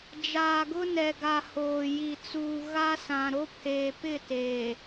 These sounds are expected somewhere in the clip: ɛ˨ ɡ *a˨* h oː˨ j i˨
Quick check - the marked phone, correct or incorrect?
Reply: correct